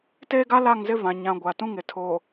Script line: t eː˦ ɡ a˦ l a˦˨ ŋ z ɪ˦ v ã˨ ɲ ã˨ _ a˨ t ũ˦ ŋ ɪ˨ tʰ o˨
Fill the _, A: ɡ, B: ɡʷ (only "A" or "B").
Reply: B